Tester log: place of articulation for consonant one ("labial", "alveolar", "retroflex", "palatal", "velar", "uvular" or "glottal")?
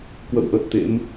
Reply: velar